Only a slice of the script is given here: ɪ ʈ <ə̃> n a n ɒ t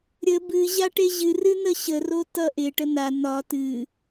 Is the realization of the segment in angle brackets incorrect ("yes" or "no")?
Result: yes